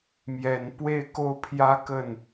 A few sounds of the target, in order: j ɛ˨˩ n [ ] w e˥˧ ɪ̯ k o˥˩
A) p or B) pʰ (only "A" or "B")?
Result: A